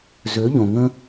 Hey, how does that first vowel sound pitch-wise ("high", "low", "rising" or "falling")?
rising